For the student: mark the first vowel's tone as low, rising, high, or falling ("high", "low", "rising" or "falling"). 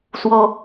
high